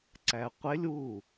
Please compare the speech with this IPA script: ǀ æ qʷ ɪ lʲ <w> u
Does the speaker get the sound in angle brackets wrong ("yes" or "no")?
no